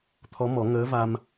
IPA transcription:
t̪ʰ ɔ˧˥ m ɔ˨˩˦ ŋ əː˧˥ v a˧ m

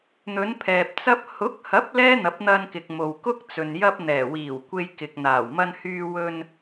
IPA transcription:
n̪ ɵ˨˧ n pʰ ɛː˨ p̚ t͡s ɐ˧ p̚ h ʊ˨˥ k̚ h ɐ˨˥ p̚ l ɛː˥ n̪ ɐ˨˥ p̚ n̪ ɐ˧ n k ɪ˨ k̚ m o˨ w k ʊ˥ k̚ t͡s ɵ˨ n j ɐ˥ p̚ n̪ ɛː˨˩ w iː˨˩ w kʷ e˧ j k ɪ˨ k̚ n̪ aː˨˩ w m ɐ˧ n h yː˧ w ɵ˧ n

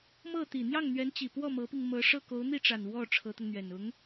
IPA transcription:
m ɤ˥˩ t̪ i˨˩ n̪ j ɑ˥˩ ŋ n̪ ɥ ɛ˧˥ n t͡ɕ i˨˩ p w ɔ˥˩ m ɤ˧˥ p i˧ ŋ m ɤ˧˥ ʂ ɤ˥˩ k o˧˥ ʊ̯ n̪ i˥˩ ʈ͡ʂ a˨˩ n w ɔ˥˩ ʈ͡ʂʰ ɤ˧˥ t̪ ʊ˧ ŋ n̪ ɥ ɛ˨˩ n ʊ˧˥ ŋ

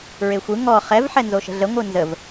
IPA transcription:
ɹ e xʷ ɯ ŋ ɔ χ ɛ v ħ ɛ n z o ʃ ə̤ ɮ ə ŋʷ ɯ n z ə v

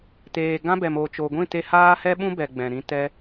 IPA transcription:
t eː˨ ɡ ã˦ b ɛ˨ m oː˨ t͡ʃ o˨ ɡʷ ĩ˦˨ t e˧ h aː˦ h ɛ˦ ɓ ũ˦ b ɛ˨ ɡ͡b ɛ̃˨ ɾ ĩ˧ t ɛ˦

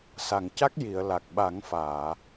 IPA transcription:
s a˨˩˨ ŋ c a˦˥ k̚ j i˨˩˨ ə̯ l a˨˩ k̚ ɓ a˨˩˦ ŋ f aː˨˩˨

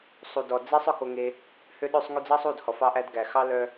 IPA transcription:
sˤ u˨ d ɔ˨ d͡z e˦ sˤ œ˧ k o˧ ŋ e˧ | h ø˦ ɗ ø˦ sˤ ŋ y˧ d͡z ɑ˦ sˤ u˦˨ d h ɔ˨ f ɑ˧ ʔ æ˧ d ɡ æ˨ x ɑ˦ l œ˧

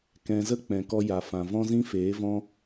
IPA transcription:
k ɛ̃˧ z ə˦ k͡p ɛ̃˨ k ɔ˧ j a˨ f ã˨ v ɔ̃˦ z ĩ˦ f eː˨˦ v ɔ̃˦

